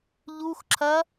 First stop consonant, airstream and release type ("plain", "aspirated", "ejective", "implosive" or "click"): click